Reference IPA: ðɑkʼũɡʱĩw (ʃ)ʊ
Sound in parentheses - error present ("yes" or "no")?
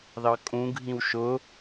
no